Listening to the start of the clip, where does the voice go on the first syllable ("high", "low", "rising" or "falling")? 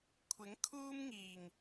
rising